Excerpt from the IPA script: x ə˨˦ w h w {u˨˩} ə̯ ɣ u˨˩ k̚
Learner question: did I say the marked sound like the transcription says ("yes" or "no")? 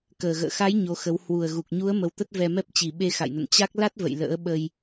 yes